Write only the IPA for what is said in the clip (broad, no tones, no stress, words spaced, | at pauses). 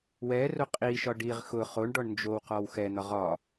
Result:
wɛro qʼiʃɒ ɖiʁ xʊ χoɳɖɔɳ nd͡ʒowqɔw xɛn̪ɒʁ ɒ